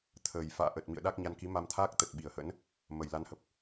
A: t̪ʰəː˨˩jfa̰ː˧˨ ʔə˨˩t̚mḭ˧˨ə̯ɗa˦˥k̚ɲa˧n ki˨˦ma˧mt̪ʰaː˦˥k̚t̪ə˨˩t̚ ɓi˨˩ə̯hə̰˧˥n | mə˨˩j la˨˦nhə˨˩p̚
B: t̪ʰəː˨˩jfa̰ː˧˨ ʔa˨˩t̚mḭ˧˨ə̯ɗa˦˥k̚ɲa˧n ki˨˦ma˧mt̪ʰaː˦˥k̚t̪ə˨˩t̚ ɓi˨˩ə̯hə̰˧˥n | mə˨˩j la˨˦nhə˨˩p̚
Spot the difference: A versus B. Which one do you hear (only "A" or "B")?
A